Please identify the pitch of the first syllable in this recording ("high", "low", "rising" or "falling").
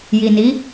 low